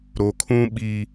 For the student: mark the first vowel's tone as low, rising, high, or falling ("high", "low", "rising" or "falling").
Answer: low